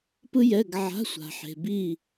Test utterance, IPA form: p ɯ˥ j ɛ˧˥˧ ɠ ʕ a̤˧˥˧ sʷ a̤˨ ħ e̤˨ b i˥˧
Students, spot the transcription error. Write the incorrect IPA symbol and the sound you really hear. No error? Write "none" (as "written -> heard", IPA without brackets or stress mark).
ɠ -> ɡ